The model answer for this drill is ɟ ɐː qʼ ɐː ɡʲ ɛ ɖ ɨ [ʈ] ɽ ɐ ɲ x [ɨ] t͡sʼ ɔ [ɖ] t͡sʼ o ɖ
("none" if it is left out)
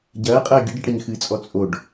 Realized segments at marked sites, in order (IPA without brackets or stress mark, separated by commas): ʈ, ɨ, none